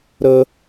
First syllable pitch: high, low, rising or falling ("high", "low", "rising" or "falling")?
high